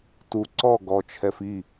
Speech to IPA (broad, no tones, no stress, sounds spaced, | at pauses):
t u ǀ ɔ ɡ ɔ t͡ʃʰ ɛ f i